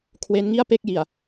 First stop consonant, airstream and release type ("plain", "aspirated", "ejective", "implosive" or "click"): aspirated